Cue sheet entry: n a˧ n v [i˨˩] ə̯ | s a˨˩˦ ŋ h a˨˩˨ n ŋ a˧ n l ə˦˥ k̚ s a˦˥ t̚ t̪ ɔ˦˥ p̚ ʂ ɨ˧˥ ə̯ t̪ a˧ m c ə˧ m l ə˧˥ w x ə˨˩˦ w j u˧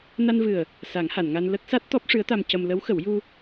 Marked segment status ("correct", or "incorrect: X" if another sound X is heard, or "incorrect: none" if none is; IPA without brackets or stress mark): incorrect: ɨ˨˩